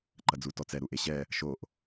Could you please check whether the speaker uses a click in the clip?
yes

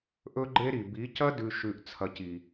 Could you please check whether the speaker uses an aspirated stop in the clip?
yes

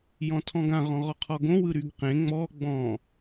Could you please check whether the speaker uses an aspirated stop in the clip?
yes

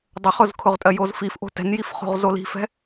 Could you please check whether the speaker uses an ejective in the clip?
yes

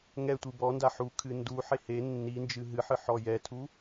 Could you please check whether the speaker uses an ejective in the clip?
no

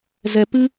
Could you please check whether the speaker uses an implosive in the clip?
no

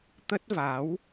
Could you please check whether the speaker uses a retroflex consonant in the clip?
no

